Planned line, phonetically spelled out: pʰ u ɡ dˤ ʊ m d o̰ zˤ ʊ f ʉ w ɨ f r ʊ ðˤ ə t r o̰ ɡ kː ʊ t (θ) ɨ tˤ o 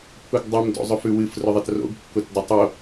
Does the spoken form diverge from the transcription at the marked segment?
yes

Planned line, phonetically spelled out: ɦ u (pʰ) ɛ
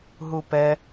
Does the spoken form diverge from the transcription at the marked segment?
yes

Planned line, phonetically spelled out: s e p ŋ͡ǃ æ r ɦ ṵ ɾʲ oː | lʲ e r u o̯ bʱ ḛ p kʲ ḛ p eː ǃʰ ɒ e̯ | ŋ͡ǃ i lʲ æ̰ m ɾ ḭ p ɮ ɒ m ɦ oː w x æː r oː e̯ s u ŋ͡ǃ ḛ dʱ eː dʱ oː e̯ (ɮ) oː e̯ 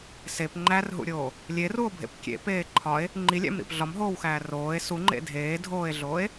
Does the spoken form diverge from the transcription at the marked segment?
no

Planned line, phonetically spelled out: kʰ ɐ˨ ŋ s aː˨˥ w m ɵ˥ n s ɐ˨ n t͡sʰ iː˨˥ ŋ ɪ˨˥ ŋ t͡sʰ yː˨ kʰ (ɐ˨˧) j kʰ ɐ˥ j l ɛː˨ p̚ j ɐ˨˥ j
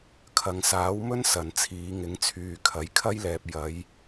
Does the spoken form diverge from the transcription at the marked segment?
yes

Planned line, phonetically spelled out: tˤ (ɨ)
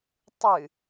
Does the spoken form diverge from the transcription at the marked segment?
no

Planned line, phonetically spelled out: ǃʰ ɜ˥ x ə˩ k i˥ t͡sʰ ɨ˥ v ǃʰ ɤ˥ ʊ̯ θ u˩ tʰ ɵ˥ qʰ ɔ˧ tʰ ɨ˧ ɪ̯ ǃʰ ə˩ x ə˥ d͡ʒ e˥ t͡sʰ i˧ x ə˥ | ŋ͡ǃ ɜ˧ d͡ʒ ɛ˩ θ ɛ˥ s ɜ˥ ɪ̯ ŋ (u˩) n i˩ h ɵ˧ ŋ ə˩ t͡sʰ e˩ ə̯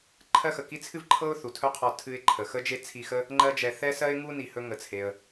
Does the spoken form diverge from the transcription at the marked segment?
yes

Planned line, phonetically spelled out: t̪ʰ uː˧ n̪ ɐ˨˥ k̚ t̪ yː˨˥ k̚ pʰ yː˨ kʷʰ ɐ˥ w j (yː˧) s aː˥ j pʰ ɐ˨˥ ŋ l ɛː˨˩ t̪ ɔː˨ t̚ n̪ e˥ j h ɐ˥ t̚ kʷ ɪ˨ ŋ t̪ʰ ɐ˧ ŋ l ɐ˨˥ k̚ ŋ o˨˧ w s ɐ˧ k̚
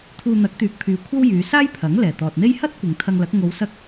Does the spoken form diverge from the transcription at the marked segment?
yes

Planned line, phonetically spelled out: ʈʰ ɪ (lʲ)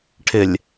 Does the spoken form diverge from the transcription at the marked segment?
no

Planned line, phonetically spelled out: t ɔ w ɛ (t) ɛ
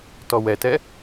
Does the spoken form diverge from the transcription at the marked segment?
no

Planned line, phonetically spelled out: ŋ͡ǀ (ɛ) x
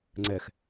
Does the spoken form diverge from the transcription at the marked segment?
no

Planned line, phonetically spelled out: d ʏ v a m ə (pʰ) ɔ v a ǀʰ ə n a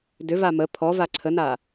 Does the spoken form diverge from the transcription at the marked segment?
no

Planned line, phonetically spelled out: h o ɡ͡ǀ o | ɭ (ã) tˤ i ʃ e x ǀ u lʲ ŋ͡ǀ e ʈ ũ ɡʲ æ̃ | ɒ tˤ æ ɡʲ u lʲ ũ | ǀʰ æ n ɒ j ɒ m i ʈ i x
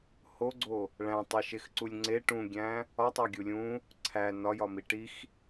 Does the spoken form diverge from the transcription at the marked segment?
yes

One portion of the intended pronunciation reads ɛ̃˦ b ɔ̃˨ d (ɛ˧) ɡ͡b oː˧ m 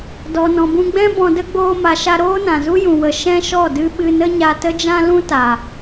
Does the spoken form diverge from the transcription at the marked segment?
yes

